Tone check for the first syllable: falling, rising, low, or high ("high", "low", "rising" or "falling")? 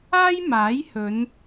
high